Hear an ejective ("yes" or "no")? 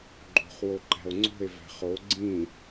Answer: no